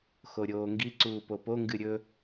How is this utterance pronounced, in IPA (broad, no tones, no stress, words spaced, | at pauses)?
xoɾʲoːŋɡi ǀuːpopo ŋɡɨɾʲɵ